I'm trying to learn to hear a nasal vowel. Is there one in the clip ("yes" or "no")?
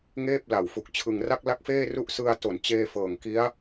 no